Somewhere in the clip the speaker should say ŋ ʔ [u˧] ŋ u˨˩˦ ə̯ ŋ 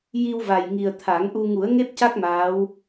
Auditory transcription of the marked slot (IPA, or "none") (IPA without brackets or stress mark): u˧